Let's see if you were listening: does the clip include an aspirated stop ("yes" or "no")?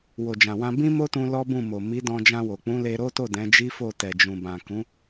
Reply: no